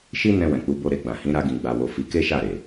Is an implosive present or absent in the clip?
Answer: absent